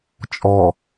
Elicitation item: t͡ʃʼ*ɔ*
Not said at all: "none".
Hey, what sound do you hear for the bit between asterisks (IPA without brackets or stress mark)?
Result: ɔ